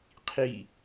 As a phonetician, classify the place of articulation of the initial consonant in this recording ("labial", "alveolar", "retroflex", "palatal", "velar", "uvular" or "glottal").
uvular